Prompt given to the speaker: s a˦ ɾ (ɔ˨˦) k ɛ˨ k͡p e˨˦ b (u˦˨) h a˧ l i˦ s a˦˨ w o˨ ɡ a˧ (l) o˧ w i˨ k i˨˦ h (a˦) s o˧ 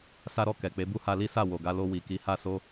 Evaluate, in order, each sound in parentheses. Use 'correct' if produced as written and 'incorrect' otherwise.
incorrect: ɔ˦˨, incorrect: u˦, correct, incorrect: a˦˨

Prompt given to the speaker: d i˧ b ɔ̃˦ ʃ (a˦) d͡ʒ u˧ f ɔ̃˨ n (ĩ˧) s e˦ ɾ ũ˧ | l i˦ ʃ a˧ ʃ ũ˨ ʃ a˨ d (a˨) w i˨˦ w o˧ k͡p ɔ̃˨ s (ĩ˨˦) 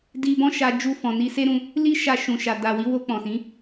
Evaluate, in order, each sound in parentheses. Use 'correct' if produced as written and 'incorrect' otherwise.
incorrect: a˧, incorrect: i˧, correct, correct

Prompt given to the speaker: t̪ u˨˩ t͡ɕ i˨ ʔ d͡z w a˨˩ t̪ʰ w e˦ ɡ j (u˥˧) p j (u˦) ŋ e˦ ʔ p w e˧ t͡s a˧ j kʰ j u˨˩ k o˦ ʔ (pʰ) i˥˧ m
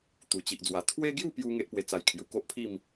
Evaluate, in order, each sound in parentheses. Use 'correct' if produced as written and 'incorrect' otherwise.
correct, correct, correct

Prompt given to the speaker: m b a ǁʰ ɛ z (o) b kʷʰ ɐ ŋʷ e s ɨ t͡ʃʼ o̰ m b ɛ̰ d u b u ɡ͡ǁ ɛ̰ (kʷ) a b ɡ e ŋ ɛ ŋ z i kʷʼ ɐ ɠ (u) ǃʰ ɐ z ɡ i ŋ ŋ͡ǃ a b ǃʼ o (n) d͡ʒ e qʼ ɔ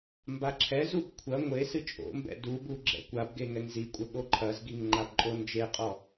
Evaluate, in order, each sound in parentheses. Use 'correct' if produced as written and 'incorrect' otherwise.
incorrect: u, correct, incorrect: o, correct

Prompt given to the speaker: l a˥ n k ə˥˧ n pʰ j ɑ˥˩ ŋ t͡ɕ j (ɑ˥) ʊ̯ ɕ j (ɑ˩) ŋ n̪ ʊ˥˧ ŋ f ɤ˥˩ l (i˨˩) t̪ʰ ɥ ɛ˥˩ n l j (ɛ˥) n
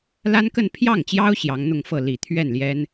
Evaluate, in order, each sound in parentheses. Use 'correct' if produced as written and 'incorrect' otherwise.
correct, incorrect: ɑ˧˥, correct, correct

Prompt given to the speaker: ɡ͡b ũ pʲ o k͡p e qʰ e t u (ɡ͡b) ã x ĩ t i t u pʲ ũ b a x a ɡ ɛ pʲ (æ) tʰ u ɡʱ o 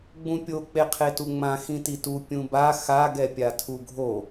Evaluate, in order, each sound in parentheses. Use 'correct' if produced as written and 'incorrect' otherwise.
incorrect: ŋ͡m, incorrect: a

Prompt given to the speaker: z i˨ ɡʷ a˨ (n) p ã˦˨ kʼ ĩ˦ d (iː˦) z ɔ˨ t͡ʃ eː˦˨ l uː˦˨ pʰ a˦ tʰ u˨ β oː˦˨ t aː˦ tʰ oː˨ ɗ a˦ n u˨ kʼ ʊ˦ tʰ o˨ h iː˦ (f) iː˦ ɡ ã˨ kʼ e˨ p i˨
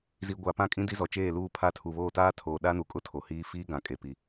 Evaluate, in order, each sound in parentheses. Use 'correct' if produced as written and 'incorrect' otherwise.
incorrect: none, incorrect: i˦, correct

